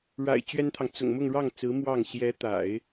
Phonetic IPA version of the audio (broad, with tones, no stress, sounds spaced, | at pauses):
ɻ a̰˨˩ ɪ̯ t͡ɕ ɥ ɛ˥ n t̪ʰ ɑ˨ ŋ t͡s ʊ̰˨˩ ŋ m ʊ˥˧ ŋ ɻ ɑ˥˩ ŋ t͡s ɹ̩˧˥ m w ɑ˥˩ ŋ ɕ j ɛ˧˥ t̪ a̰˨˩˦ ɪ̯